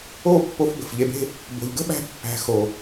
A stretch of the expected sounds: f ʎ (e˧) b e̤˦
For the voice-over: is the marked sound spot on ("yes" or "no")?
yes